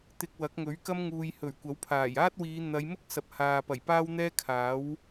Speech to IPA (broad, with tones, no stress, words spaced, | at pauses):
t̪ɪ˧k̚wɐ˨˥k̚ ŋɵ˨˥ɥkɐ˥m ŋuː˨jhɵ˨˩ɥ kʷɐ˨˥wpʰaː˨˩j aː˥t̚wiː˨˧ n̪ɐ˨˧jmʊ˥k̚ sɐ˨p̚ haː˨pɐ˨˩jpaː˥wn̪ɛː˥ kʰaː˨˥w